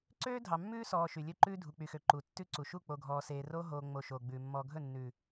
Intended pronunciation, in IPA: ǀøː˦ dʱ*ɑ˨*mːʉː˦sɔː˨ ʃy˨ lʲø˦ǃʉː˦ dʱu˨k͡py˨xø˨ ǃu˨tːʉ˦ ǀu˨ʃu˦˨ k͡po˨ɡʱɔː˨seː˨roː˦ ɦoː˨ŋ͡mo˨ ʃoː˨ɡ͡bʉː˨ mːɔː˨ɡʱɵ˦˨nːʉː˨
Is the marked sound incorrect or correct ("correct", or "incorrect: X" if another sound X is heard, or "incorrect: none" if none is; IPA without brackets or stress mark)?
correct